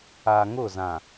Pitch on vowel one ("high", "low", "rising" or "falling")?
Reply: low